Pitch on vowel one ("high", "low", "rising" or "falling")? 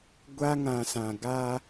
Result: high